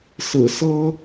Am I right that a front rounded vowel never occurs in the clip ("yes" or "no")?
yes